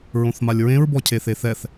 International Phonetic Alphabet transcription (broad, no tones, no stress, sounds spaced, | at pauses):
ɹ õ θ m a lʲ ɹ ẽ ɹ b ɔ cʰ e θ e θ ɛ θ